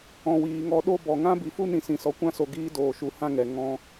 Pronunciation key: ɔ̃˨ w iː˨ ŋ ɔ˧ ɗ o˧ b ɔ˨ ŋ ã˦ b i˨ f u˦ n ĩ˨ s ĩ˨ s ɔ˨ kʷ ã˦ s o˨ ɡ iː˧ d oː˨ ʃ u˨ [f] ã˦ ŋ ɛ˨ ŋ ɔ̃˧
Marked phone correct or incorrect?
incorrect